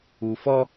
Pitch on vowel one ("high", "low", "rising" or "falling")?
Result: low